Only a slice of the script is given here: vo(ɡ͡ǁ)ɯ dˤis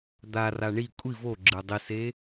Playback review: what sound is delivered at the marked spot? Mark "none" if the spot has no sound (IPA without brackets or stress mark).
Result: ɡ͡ǁ